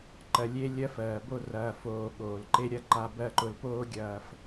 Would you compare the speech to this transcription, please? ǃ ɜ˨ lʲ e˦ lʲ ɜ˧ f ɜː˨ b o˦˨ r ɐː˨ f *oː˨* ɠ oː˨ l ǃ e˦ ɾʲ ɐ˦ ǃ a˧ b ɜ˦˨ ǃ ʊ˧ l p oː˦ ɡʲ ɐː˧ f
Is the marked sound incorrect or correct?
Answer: correct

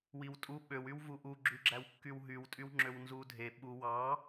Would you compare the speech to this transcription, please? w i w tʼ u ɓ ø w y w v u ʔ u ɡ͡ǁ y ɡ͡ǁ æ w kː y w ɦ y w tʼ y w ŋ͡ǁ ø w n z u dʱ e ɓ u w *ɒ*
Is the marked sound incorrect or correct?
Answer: incorrect: ɑ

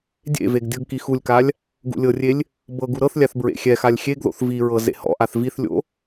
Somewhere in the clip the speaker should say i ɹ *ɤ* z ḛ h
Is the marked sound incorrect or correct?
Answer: correct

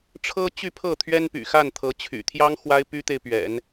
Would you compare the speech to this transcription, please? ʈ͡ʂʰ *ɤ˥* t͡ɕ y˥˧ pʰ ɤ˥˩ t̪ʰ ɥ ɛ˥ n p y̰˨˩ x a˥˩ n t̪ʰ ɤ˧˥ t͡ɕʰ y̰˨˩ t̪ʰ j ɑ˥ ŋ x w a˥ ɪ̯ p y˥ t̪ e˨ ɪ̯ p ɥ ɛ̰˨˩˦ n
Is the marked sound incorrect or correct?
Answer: correct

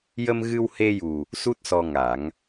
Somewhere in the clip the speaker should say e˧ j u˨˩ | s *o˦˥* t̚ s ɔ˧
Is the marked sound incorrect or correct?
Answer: incorrect: u˦˥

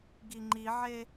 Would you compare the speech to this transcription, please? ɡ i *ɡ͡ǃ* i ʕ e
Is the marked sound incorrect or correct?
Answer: incorrect: ŋ͡ǃ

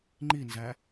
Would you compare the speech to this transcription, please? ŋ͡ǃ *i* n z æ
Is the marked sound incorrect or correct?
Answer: correct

